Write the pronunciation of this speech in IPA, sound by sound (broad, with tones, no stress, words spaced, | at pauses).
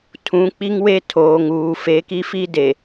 tʰũ˨˦k͡pi˦ŋwe˦ tʰoː˨ ŋuː˨ fe˨˦ki˦fi˦de˨